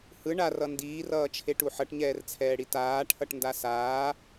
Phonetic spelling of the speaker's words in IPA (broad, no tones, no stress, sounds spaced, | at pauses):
h ɯ ɳ a r ʌ n d iː r ʌː t͡ʃʰ e ʈ u ħ ʌ ʈ ɲ ɛː r t͡sʰ ɛː ɽ i t aː ʈʰ ʌ ʈ n d a s aː